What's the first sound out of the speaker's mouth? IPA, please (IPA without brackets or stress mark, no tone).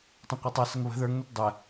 tˤ